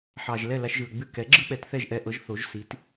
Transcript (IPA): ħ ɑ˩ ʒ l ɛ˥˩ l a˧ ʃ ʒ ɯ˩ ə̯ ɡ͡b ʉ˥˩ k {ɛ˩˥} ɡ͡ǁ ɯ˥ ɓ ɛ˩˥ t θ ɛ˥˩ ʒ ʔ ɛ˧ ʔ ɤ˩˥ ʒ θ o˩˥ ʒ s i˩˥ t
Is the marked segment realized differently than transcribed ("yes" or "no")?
no